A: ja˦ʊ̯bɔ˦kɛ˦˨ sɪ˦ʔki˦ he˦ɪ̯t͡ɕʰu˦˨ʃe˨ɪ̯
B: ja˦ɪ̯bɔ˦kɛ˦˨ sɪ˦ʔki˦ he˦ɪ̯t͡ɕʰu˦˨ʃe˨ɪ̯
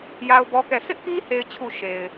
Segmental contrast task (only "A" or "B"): A